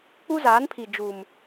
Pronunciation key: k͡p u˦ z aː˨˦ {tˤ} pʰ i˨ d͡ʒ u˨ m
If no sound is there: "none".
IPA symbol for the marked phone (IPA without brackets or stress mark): n